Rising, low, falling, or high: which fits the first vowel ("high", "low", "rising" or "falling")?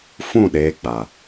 falling